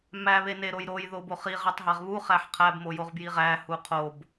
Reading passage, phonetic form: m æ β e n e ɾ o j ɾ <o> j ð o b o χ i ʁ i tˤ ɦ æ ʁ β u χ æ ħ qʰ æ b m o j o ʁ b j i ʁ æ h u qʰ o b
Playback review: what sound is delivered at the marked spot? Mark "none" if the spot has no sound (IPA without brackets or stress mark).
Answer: o